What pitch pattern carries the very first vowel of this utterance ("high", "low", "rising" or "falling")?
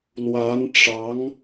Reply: rising